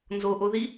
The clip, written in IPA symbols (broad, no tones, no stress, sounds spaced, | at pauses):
n z o ʔ o ð i